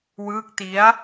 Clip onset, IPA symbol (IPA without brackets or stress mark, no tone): w